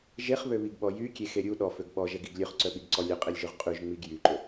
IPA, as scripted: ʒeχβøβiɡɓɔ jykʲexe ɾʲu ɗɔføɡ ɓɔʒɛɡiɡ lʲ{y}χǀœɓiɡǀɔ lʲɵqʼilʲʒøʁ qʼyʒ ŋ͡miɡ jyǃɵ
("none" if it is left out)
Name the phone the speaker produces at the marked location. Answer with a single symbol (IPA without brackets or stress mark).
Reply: ø